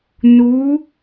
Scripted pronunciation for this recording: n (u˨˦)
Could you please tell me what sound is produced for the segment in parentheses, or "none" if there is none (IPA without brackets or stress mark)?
u˨˦